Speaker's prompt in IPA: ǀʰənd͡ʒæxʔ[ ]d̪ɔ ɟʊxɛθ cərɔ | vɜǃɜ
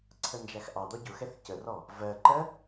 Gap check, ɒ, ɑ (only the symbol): ɑ